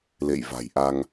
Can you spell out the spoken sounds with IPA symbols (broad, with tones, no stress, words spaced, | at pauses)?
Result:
lḛ˧˨jva̤˨˩jʔa˧ŋ